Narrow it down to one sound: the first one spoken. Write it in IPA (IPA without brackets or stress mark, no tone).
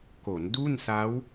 k